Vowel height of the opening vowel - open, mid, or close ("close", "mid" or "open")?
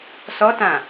mid